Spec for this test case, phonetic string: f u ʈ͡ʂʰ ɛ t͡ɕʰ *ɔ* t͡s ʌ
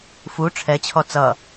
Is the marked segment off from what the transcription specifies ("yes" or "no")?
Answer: no